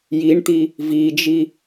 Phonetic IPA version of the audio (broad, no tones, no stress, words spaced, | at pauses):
jiɳt̪i | vid͡ʒi